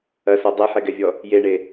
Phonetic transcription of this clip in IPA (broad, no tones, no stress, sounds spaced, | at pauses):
ɐ s ɔ dˤ e ħ ɛ ɡ ɛ vʲ ɔ | j e ɳ e